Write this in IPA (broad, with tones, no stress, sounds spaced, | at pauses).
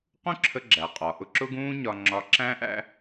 q ũ˥ ǁʰ ə˧ ɡ͡ǁ æ˩ qʼ ɒ˩ ʔ ʊ˧ ǁ ʊ˥ ɡ ũː˥ ɲ ɒ˧ ŋ͡ǁ ɒ˧ ǁ æ̃˥ ʔ æ̰˥